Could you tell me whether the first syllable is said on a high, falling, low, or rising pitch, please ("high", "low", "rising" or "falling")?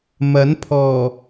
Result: rising